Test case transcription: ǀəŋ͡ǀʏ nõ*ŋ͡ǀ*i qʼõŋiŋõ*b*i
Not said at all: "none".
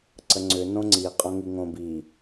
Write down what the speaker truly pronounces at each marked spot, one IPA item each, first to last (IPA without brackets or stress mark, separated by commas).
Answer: ŋ͡ǀ, b